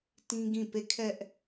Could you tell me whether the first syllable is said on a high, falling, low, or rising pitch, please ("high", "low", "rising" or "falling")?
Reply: high